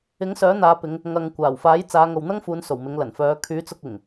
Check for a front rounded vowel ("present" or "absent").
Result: present